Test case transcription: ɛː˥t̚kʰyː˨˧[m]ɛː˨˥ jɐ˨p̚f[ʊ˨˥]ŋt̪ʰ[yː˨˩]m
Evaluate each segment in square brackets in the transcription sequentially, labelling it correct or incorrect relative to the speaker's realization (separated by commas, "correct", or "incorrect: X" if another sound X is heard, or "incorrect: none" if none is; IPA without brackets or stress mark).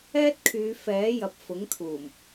incorrect: f, correct, incorrect: uː˨˩